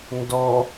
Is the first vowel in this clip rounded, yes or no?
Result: yes